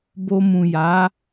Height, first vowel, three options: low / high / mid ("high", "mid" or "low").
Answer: mid